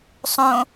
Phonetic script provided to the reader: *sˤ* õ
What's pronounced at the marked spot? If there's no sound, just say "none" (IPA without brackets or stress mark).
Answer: sˤ